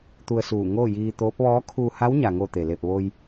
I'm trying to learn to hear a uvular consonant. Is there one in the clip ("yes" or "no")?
no